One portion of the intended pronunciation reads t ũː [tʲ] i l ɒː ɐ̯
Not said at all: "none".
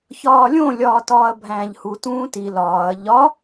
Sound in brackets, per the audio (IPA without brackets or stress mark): t